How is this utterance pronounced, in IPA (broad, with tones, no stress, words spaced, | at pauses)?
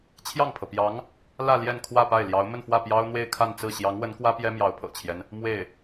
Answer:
t͡ɕʰjɑ˥˩ŋpʰɤ˩pjɑ˧˥ŋ | lä˥˧ ljɛ˥˧nkʰwä˥˧pa˥˩ɪ̯ ljɑ˧˥ʊ̯ mə˥˧nfwä˥˩ pjɑ˥ʊ̯n̪we˥˧ɪ̯ kʰa˥˧nt͡sɹ̩˥˩ ɕjɑ˧˥ŋwə˧˥nkwä˥ pjɛ˥mjɑ˧˥ʊ̯pʰɤ̰˨˩t͡ɕʰjɛ˦n | mwe˥˩ɪ̯